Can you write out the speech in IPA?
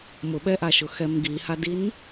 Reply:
mʊɓɛʔaʃʊ xɛmɡihadin

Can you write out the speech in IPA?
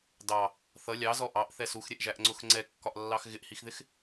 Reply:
dɑ | θʌ lʲɑzɔ ʔɑʔθɛ suxɾʲɛʔʒæʔŋ͡ǀʊx ŋ͡ǀɛkːɒʔlːɑx ɣɪʔhixðɪx

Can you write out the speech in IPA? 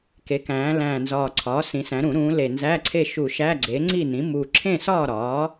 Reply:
ke˩˧kæ̃ː˩˧ læ̃ː˨˩nzɒː˨˩ǀʰɒː˩˥ sĩ˩˧ sæ̃˩˧ɾũ˧˩˧ɾũː˩˧ le˨˩ nzæ˧˥˧ǀʰe˥˨ʃu˧˩˧ ʃæ˧˥˧ ɡ͡ǀe˩˥ ŋ͡ǀi˥˨nĩ˩˥ mu˨˩ ǁʰẽ˥˨sɒː˥˨ɾɒː˩˥

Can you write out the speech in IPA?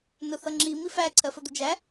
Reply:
nʊθʌŋ͡ǁi mifæ ǀʰɜfəd̪ʊd͡ʒæ

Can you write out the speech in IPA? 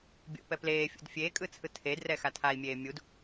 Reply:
bʲo̰pɛ pleːfʲo̰d fʲeːkʼɯt͡sʰɯ tʰedrɛxa tʰai̯mʲeː mʲud

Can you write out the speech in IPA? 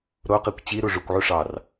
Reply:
ɾoqikʷ t͡ɕiɾu ʐukʷʕu ʂɑr

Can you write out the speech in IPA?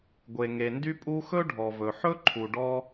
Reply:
ɡʷe˩ŋe˩ndy˥pʼu˥ xɵ˥ɖʱɔ˩vɵ˩ħɵ˥ ǃʰu˩ɖɔ˥

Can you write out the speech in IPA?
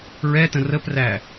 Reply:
ɹɛtə̃ rəpræ

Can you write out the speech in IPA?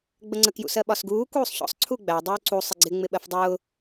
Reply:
ɡ͡bəŋ͡ǀək jṵsɜɓɒsɡuː kuːsˤçɔ̰sˤ ǀʰuɡ͡bæ dˤuːǀu sˤəɡ͡ǀɪ ŋ͡mɪɓɜfdˤʊː

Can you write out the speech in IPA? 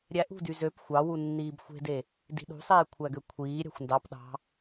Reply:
ɾʲæʔṳdy zøp xʷɑwu nːiːbxʷe̤de | di̤ɗṳsˤeː kʷʰæɡøkʷʰiːɾʲɑ̤xʷ ndɑp ɗɑ̤

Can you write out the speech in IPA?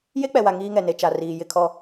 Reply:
je˦k͡pɛ˨wa˨ ŋiː˦ŋɛ˨ ne˨t͡ʃa˨ riː˨ jɪ˦˨kʰɔ˦˨

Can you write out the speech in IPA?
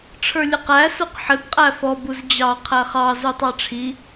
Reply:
ʈ͡ʂʰə˞lʲəqæ suqħɪb qʼæfɔ buzd͡ʑɑ qʰæχɑ zutˤɑʈ͡ʂʰi

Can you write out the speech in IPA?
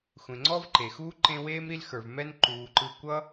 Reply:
xʷẽ˨ŋ͡ǀɔ˥vǃe˩xuː˥ ǃẽ˦weː˥mɾi˦l xə˞˨v mɛ˦n ǃuː˨ǃɯ˦ kʷʌ˥

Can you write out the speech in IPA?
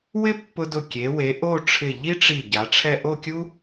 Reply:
wɪ˥pːʊ˧dʊ˧˩ kʲe˩˧we˩˧ʔo˥˧ ʈ͡ʂʰɪ˧˩ʎi˥ ʈ͡ʂi˧˩ ɟa˩˧ʈ͡ʂʰɛ˥˧ ʔo˥˧kʲu˥

